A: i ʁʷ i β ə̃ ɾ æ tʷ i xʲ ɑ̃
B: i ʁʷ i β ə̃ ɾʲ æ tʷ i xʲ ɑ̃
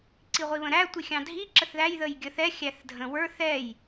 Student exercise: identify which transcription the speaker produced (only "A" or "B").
A